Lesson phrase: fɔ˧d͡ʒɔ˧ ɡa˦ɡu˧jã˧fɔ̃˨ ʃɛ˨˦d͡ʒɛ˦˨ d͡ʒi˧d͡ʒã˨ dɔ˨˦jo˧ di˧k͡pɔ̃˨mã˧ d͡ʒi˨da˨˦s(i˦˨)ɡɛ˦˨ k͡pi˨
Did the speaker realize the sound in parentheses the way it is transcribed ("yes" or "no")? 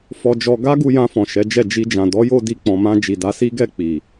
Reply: no